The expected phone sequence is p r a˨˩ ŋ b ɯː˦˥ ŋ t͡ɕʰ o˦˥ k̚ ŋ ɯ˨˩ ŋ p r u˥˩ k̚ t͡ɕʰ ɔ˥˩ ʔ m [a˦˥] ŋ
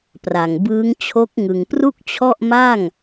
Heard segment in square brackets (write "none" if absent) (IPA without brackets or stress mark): a˥˩